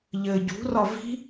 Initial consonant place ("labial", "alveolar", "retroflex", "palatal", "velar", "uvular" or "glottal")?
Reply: palatal